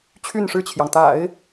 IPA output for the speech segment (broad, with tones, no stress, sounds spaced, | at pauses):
t͡ɕʰ y˥˧ n ʂ ɻ̩˥˩ t͡ɕʰ j ɑ˩ ŋ t̪ a̰˨˩˦ ɪ̯